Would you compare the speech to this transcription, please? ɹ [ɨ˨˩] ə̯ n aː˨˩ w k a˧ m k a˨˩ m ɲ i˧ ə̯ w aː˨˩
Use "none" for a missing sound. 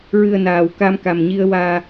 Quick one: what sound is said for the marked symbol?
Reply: ɨ˨˩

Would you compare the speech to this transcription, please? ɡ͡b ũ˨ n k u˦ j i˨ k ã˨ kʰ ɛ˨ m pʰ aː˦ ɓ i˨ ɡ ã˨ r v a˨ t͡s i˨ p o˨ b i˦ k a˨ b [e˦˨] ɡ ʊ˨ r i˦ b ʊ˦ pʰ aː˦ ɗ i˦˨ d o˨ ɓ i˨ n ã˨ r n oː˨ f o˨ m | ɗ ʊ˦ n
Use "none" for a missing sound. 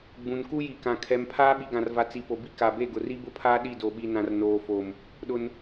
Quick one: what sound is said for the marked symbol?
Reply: e˦˨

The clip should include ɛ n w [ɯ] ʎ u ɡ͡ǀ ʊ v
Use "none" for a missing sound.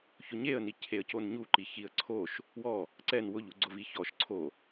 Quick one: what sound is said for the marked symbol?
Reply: ʊ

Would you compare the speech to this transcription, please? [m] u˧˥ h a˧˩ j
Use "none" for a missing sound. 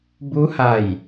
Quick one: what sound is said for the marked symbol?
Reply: b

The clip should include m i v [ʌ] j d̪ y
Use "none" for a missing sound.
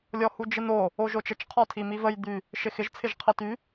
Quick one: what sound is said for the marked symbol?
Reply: ə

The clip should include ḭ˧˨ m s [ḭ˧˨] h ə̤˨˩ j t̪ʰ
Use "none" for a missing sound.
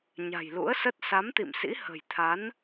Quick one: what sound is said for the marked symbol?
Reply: ḭ˧˥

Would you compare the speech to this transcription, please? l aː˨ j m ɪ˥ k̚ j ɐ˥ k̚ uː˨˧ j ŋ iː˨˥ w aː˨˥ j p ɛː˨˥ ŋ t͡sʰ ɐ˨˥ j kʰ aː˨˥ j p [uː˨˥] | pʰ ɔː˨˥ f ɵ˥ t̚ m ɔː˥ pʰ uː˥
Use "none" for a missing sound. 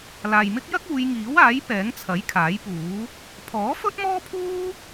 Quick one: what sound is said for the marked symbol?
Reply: uː˨˥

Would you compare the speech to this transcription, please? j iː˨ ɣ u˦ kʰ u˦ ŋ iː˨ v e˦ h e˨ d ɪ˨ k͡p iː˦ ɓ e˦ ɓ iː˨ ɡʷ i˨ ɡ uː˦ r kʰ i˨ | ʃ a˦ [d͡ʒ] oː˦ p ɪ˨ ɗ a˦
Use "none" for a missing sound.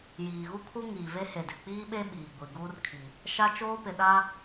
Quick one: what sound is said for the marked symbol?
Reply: t͡ʃ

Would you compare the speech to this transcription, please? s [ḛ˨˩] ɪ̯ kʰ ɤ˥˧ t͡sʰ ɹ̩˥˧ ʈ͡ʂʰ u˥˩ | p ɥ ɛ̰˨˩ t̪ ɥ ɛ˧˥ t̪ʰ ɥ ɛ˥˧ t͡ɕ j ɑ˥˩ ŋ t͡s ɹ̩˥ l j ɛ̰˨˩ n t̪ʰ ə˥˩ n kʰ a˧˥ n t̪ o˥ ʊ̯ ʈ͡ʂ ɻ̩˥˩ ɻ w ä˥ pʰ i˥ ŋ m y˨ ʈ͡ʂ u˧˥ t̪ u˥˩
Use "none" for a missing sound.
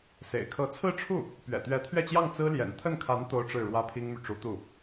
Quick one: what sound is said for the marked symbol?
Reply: ḛ˨˩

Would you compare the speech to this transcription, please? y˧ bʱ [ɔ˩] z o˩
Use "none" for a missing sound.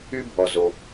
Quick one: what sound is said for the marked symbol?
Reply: ɔ˩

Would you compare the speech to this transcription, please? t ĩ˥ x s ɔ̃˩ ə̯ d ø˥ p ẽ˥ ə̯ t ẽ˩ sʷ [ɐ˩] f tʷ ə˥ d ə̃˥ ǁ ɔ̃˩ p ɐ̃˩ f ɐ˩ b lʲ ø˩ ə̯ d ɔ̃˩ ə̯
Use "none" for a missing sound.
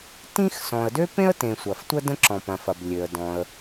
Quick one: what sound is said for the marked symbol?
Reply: ɐ˩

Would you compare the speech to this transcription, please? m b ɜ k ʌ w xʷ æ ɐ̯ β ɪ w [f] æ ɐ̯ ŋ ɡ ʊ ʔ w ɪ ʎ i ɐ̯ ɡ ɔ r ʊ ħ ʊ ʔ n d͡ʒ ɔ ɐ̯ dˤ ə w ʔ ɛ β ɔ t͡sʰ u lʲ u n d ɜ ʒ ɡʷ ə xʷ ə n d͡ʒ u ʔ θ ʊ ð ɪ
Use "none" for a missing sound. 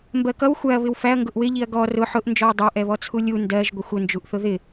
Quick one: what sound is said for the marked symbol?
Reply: f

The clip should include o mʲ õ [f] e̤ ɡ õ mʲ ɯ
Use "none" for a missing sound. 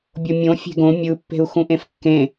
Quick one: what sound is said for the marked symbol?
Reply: fʲ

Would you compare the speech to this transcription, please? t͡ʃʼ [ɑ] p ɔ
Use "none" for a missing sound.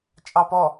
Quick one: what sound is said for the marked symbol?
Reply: ɑ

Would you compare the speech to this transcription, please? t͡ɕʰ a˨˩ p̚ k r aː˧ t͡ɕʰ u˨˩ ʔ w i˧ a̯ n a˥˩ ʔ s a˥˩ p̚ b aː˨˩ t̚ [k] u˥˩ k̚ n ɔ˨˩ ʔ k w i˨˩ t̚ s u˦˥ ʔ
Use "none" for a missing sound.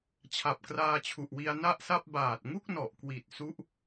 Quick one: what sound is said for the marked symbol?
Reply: ŋ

